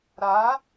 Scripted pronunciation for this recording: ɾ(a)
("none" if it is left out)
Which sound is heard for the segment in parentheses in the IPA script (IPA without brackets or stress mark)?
a